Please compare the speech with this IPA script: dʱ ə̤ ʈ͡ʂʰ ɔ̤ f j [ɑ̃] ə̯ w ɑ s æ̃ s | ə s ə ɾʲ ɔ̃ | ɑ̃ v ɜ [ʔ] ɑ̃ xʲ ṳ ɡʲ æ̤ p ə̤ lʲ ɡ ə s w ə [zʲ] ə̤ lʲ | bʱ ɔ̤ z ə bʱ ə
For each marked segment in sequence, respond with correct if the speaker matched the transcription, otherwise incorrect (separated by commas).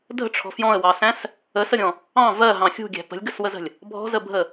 incorrect, incorrect, incorrect